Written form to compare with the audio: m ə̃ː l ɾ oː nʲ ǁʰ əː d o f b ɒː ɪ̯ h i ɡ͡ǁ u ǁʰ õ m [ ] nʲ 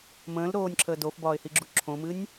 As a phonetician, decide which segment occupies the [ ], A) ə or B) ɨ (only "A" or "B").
B